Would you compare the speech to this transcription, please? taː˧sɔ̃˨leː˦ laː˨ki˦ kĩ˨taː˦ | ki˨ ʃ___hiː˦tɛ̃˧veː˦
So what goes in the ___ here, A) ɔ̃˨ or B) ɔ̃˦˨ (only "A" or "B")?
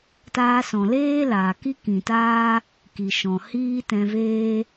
A